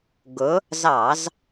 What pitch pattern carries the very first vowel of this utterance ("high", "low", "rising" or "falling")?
rising